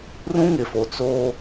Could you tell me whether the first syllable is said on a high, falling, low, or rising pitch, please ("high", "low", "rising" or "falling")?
high